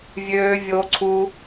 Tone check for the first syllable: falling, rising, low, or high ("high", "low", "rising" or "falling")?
high